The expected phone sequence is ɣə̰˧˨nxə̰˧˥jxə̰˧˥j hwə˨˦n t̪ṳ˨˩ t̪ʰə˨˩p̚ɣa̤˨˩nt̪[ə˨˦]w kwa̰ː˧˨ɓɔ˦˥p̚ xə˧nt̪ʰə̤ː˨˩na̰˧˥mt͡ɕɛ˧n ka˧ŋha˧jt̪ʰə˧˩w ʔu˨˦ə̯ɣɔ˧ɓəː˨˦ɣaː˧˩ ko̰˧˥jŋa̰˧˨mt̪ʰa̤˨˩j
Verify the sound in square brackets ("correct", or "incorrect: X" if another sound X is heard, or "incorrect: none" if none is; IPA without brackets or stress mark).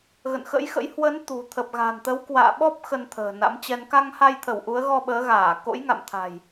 correct